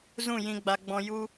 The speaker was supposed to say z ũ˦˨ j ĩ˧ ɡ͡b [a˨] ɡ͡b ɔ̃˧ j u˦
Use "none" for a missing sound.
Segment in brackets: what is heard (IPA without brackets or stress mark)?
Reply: a˧